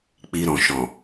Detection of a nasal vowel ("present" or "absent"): present